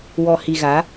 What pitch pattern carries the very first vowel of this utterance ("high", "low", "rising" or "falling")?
low